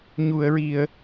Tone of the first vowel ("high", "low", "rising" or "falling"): low